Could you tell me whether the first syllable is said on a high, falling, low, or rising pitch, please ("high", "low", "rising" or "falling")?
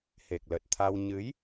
low